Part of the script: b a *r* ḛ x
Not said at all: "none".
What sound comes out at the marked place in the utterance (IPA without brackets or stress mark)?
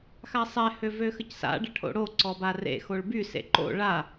r